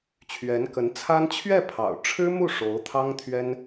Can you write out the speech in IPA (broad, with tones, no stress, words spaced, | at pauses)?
t͡ɕʰɥɛ˧˥n kə˧˥n t͡sʰa˥n t͡ɕʰɥɛ˥˩pʰɑ̰˨˩ʊ̯ʈ͡ʂʰɻ̩˥mu˥˩ ʂo˧˥ʊ̯t̪ʰɑ˥ŋ t̪ʰɥɛ˥n